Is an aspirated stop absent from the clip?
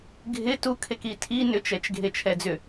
no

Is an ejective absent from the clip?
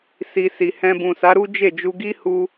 yes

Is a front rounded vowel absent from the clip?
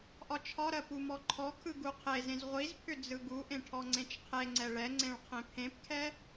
no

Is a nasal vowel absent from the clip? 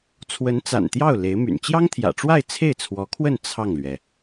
yes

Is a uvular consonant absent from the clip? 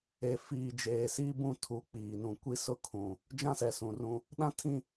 yes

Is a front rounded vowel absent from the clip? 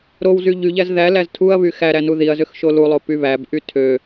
no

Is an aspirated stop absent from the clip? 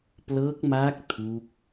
no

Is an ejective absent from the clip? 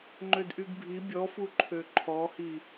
yes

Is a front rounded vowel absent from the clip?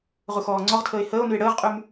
no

